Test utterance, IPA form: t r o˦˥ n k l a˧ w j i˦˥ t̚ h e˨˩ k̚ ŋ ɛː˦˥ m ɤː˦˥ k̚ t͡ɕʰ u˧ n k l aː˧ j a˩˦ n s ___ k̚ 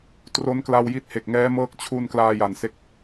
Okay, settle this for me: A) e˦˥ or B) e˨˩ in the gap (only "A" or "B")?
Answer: A